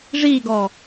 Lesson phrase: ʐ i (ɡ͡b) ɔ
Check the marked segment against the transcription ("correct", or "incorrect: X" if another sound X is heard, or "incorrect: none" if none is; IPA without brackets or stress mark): incorrect: ɡ